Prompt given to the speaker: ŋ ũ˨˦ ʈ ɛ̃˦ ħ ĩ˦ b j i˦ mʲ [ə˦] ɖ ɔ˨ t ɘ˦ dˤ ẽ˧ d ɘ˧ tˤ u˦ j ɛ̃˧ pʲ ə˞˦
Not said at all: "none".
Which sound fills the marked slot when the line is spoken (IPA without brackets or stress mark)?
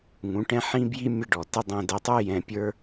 ə˦